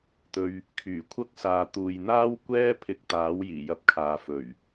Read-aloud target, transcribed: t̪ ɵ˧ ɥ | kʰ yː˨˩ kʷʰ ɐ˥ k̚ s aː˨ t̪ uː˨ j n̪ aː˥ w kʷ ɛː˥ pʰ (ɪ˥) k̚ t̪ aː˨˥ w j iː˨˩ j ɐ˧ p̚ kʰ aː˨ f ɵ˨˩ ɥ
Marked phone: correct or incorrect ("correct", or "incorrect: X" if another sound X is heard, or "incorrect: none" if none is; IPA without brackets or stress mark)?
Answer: incorrect: ɪ˧